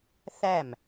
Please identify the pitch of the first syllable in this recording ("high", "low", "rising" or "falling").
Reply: falling